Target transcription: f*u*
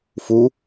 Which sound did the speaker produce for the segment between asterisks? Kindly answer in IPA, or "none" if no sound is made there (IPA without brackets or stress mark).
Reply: u